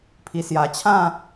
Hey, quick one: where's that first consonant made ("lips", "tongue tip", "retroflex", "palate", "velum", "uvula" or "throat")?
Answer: lips